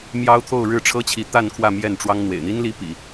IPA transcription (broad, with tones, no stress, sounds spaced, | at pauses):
m j ɑ˥ ʊ̯ t̪ʰ o˥˧ ʊ̯ ɻ ɻ̩˥˩ ʈ͡ʂʰ ɤ˥ t͡ɕʰ i˧˥ t̪ a˥˧ n kʰ w ä˥˧ m j ɛ˥˩ n ʈ͡ʂ w ɑ˥ ŋ n̪ w ḛ˨˩ ɪ̯ n̪ i˥ n l i˧˥ p ḭ˨˩˦